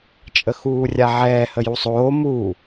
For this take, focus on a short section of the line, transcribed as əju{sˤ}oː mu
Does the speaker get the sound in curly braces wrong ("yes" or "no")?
no